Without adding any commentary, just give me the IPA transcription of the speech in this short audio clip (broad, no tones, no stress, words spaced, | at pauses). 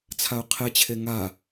t͡sʰaʊ̯qʰet͡ɕʰe ŋa